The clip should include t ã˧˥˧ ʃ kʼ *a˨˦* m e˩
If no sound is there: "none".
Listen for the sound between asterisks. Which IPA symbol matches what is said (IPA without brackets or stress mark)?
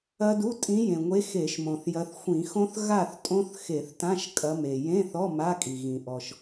ɐ˨˦